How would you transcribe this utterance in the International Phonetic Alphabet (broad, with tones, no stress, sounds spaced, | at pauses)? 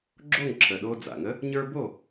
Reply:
ɡ͡ǁ o˥˨ ŋ ǁʰ ə˨˩ ɗ o˧ d͡z a̰˨˩ ŋ ə˧˥ | ɲ ə˞˥ b o˥˨